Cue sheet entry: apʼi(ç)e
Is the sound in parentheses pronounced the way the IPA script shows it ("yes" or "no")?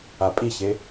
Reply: yes